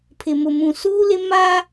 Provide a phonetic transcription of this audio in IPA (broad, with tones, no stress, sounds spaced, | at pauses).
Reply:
pʰ ɪ˨ m ʊ˨ m ũ˨ s uː˦ l ɪ˦ m a˦